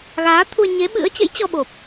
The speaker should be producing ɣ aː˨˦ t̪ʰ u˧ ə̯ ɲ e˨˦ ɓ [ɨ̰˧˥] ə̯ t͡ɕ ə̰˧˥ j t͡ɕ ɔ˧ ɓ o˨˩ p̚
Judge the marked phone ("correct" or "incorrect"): correct